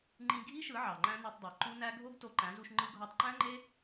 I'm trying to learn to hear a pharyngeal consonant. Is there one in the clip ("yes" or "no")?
yes